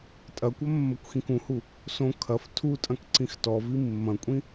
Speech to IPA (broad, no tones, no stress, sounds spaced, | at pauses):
tʼ ɐ kʷ ɐ mː ɐ kʷ x ĩ k ũ h u | s õ kʰ ɐ f tʰ u tʼ ɐ̃ k ǀ ĩ x t ɔ v i mː ɐ̃ kʷʼ ĩ